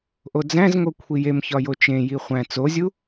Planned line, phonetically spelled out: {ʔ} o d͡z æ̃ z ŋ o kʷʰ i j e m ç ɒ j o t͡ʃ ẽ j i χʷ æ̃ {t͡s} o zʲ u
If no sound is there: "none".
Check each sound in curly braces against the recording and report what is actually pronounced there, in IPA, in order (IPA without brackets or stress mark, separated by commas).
ʔ, t͡s